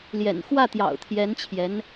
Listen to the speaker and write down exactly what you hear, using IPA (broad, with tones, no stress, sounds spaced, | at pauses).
l j ɛ̰˨˩ n x w ä˥˩ t̪ j ɑ̰˨˩ ʊ̯ t̪ʰ j ɛ˧˥ n t͡ɕʰ j ɛ˧˥ n